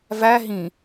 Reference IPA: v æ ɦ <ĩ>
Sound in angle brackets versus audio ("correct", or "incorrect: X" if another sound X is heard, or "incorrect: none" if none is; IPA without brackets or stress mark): correct